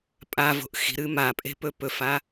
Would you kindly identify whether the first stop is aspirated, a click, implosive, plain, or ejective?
ejective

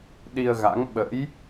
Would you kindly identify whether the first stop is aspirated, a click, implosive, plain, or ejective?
implosive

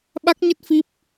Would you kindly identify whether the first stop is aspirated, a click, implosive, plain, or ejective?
implosive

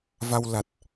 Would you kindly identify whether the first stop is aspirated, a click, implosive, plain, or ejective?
plain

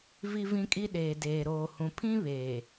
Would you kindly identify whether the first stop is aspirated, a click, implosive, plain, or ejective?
ejective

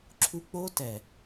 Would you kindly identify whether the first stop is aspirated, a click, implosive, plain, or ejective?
click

